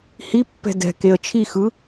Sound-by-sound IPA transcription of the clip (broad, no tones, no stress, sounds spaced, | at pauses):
h i pː ɛ̤ d ɛ̤ k e ə̯ t͡ʃʰ i x ɯ